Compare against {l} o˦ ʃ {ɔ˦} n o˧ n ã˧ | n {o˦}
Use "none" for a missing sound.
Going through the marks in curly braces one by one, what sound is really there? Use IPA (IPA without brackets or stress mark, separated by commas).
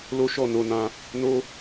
l, ɔ˦˨, o˦